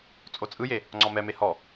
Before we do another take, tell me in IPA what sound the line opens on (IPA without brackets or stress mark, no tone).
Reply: t͡sʼ